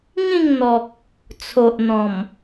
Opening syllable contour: falling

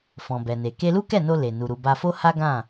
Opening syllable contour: low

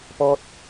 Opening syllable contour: high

